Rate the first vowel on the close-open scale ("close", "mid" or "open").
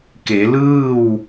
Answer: mid